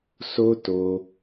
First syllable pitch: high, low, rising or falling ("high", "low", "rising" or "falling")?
high